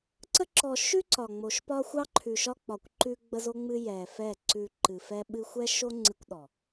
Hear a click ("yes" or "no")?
yes